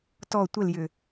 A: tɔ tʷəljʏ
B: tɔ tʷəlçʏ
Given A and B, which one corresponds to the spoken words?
A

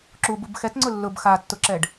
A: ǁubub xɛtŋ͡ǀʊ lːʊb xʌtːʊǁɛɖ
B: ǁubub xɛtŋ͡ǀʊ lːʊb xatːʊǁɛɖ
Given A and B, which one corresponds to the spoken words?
B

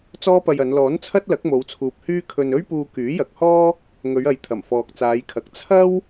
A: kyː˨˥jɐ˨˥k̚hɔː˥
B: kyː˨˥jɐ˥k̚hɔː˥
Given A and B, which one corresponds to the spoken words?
A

